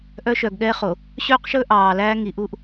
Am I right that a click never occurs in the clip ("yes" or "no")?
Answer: yes